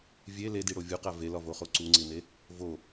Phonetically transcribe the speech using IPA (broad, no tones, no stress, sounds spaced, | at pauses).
vʲ e l e d i ɽ o vʲ u q æ v e l ɒ v o χ o ǀ u ŋ͡ǀ i n e | v o